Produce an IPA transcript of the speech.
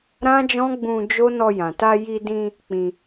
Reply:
ɾã˦d͡ʒɔ̃˦ɡ͡bũ˧ d͡ʒo˦nɔ˧ jã˨ ta˧ji˧dĩ˧ | k͡pĩ˧

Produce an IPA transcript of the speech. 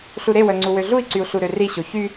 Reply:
ɬuɾewœ ŋ͡ǀuwøɮui̯ǀyu̯ ɬuɾøriɕo çy

